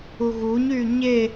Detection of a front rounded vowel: present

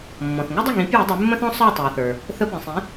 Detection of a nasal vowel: present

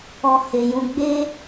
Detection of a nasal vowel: present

